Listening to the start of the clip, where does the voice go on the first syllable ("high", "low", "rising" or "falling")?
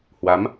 rising